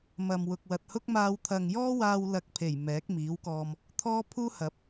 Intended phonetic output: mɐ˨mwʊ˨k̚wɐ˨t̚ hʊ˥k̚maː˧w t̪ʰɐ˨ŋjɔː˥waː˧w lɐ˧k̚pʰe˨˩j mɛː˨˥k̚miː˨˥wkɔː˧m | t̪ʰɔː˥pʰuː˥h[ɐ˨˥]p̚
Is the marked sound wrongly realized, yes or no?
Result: no